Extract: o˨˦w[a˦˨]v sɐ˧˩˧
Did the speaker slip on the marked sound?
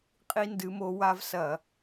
yes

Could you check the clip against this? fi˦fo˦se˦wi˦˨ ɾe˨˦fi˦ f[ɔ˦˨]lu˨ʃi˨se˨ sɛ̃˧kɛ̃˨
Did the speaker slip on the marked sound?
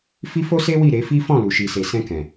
yes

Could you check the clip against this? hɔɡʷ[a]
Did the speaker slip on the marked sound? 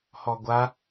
no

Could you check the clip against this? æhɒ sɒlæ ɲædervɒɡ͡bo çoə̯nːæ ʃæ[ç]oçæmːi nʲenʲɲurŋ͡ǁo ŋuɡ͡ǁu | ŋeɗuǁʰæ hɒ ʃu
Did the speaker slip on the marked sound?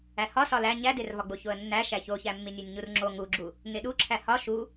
no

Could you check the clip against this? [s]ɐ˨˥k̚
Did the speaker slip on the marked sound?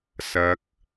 no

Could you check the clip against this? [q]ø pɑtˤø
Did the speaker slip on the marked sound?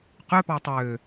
no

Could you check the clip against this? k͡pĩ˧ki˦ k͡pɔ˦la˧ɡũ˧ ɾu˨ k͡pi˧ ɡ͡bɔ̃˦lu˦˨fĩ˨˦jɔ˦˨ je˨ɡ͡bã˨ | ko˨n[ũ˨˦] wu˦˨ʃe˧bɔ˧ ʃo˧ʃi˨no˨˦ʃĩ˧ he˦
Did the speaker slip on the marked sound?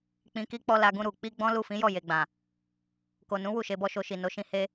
no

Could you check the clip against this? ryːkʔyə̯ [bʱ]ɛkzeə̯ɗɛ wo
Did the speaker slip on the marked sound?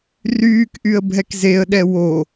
no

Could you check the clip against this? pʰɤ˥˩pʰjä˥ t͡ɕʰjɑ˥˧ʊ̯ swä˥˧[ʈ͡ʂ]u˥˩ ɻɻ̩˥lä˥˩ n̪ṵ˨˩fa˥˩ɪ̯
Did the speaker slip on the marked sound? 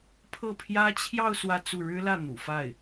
yes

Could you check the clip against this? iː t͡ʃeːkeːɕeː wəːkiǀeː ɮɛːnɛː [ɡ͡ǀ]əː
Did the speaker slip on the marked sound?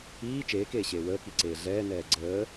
no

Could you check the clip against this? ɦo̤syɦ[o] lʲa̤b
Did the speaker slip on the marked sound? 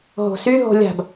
yes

